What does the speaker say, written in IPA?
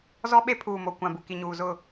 z ɔ˦ ɓ e˦ pʰ uː˨ m o˨ kʷ ã˨ b u˨ k i˨ ɲ uː˨ z ʊ˦˨

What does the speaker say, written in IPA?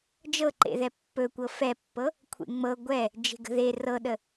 d͡ʒ ɤ ǃ ḛ ð ɛ pː ɵ kʷ ɤ f ɛ pː ɤ | kʷʰ ḛ ŋ͡m ɤ ɡʷ ɛ | d͡ʒ e̤ ɡ ə̤ ð e r ɤ ɗ ə

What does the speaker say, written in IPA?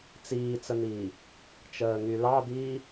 t͡s iː t͡s ə n̪ iː | t͡ʃ əː ŋ y l ɑ d̪ iː

